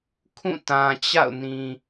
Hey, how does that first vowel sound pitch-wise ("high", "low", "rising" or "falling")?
falling